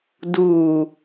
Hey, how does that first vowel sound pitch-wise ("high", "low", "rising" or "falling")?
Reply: low